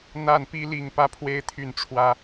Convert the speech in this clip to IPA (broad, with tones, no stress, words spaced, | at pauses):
n̪a˥˨npi˦li˥˨ŋ pä˦pʰwe˦ɪ̯t̪ʰy˥˨nʈ͡ʂʰwä˦